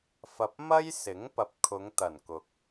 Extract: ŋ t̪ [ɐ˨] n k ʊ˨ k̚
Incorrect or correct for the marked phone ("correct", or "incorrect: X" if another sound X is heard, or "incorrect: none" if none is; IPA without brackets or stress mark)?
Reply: incorrect: ɐ˨˩